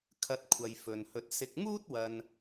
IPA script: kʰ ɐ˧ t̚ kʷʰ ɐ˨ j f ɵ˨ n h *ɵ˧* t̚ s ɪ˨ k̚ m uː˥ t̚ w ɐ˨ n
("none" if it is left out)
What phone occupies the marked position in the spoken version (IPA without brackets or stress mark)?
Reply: ɵ˧